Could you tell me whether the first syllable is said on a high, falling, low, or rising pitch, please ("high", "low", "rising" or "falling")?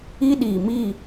high